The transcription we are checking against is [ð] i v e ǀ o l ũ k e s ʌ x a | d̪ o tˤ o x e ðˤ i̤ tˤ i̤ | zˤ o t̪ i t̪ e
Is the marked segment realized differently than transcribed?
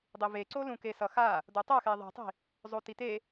yes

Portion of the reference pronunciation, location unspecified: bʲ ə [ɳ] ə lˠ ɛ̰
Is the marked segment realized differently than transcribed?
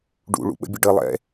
yes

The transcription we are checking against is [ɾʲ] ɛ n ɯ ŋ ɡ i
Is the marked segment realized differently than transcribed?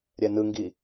no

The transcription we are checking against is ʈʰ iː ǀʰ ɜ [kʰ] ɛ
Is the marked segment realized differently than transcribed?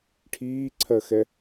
yes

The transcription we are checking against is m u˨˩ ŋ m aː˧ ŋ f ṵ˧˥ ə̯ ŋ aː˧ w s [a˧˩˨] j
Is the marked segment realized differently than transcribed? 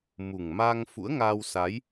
yes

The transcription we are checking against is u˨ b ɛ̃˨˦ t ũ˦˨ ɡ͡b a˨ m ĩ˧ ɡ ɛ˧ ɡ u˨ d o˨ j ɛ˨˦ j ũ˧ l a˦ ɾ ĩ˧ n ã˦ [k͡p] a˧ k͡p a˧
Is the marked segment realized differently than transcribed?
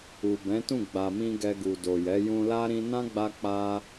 yes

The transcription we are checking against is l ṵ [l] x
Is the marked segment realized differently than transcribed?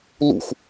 yes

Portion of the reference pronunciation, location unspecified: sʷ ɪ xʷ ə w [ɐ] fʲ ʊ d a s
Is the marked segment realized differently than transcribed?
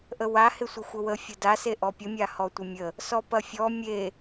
yes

